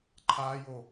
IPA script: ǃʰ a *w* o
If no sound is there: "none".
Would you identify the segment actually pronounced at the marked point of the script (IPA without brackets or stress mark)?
j